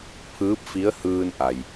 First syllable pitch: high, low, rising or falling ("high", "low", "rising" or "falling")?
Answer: rising